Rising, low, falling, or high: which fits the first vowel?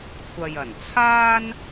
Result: low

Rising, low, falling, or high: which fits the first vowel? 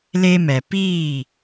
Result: high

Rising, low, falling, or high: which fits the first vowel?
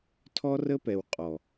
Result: high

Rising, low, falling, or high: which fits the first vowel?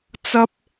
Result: high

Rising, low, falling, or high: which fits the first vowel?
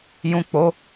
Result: low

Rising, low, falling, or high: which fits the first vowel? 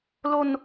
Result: falling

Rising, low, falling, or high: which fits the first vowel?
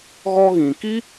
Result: high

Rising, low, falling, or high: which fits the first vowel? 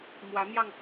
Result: rising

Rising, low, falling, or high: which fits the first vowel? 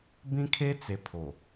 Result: high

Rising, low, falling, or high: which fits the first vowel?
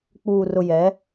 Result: low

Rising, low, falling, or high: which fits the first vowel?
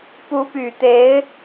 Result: rising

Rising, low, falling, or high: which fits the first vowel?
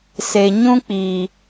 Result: low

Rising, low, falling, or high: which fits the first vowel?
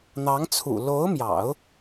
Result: rising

